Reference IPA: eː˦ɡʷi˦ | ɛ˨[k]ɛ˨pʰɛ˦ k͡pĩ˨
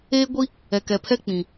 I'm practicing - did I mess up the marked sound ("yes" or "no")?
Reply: no